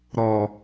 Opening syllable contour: low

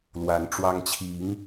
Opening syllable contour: rising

